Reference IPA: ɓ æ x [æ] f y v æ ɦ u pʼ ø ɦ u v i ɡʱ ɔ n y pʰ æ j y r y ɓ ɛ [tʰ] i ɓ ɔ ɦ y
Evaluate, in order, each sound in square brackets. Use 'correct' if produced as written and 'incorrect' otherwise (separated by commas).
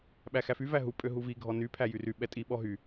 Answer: correct, incorrect